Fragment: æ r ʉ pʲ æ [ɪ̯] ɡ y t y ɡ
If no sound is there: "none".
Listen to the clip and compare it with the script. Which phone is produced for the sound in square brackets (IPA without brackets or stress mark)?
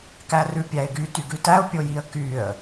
ɪ̯